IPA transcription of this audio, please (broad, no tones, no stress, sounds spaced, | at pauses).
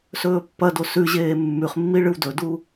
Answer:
s ɵː pː ɐ d o s ʉ ʑ eː mː ʉ χ mː i ɭ ɨ w d ɵ d u